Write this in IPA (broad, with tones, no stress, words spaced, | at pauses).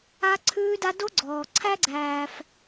a˦ǀʰʉː˦da˦ do˦ɡ͡ǀɔː˩ ǀʰæ˥ɡ͡ǀæː˨f